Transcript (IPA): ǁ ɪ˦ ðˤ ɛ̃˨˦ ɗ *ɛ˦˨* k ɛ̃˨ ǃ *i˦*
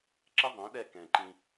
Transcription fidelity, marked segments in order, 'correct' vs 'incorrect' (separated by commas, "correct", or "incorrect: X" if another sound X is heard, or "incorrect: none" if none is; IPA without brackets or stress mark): correct, incorrect: ĩ˦